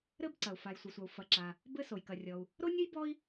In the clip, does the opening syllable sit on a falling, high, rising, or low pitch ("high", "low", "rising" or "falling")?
high